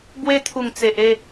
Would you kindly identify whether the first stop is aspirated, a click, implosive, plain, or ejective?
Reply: plain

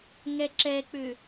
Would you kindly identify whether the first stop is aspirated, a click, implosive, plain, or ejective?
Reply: click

